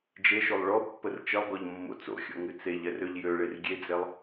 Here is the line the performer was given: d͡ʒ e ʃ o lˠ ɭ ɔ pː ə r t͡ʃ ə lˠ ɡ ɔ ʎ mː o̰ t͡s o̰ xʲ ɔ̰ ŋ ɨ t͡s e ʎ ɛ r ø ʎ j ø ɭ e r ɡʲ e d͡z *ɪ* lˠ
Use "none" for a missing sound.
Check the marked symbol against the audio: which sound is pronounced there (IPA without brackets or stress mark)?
ɛ